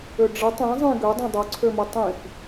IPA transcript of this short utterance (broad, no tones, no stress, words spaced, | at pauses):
øɖ͡ʐə tˤĩ zˤĩ ɡødˤõ dˤoǀʰømo tˤĩf